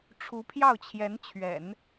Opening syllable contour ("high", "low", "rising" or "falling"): rising